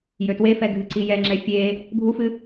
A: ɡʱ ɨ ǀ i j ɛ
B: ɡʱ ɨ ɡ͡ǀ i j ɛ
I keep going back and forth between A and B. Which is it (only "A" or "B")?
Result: A